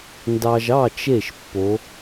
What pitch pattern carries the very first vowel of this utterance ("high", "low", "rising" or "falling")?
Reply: low